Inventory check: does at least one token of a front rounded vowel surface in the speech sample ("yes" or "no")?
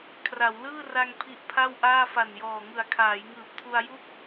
no